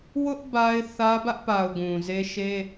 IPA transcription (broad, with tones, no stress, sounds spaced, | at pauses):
w ʊ˦ ʔ b a˦ ɪ̯ θ ä˦ b ä˦ ʔ p a˨ ʊ̯ ɡ ũ˨ z e˦ ʃ e˦